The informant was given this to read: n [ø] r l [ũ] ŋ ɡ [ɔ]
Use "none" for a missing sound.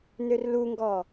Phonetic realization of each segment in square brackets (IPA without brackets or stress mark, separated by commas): ø, u, ɔ